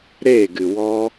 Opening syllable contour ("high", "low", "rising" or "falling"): falling